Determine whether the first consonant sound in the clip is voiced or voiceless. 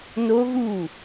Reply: voiced